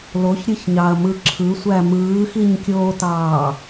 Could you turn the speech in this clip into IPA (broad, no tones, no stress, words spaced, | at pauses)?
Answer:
loçɾʲɯçɲɑɐ̯mɯ ǁʰɯsʷæ mɯːxiɲkʲoːtɑː